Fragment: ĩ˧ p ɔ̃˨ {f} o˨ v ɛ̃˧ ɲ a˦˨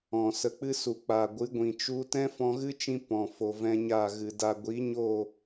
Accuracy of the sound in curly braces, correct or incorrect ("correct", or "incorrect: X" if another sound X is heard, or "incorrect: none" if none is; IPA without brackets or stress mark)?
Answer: correct